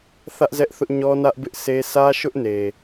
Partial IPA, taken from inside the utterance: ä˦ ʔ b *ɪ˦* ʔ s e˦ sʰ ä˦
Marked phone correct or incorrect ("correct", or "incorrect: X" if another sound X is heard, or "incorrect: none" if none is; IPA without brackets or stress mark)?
correct